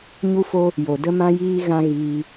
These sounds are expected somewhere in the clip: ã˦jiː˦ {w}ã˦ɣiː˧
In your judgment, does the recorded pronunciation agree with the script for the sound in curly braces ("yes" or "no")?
no